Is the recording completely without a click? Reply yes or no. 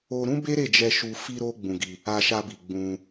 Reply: yes